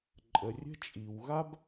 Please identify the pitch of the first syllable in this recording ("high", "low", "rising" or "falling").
low